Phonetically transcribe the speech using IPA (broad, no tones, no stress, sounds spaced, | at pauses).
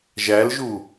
ʒ æ l ʒ u